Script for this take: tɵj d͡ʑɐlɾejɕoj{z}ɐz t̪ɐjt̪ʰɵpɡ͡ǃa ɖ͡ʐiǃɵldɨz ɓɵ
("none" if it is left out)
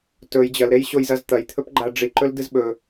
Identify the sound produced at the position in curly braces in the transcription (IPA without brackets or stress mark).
z